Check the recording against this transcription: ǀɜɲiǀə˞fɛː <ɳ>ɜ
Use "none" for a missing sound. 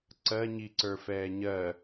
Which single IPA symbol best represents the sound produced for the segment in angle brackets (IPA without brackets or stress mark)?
ɲ